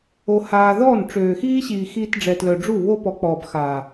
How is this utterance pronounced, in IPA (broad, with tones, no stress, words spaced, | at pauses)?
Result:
o˧haː˧ ðɔ˦˨n ʈ͡ʂøː˨xiː˦ɕiː˨ xiː˧tɖ͡ʐɛ˨tlœ˨ɖ͡ʐu˦˨ βo˦pɔ˨˦k͡pɔː˨b xaː˨